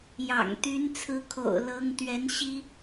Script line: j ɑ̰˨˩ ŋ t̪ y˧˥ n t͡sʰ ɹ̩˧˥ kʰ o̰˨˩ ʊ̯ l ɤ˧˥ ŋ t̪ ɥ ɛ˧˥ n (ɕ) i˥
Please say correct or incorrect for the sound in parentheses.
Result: correct